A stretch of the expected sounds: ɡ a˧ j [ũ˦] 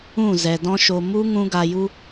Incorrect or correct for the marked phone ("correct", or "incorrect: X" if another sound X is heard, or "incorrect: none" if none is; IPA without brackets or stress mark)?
incorrect: u˦